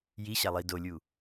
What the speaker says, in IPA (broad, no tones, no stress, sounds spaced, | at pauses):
j i ɕ a lˠ i d o lʲ u